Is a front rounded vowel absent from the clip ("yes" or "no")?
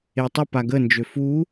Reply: no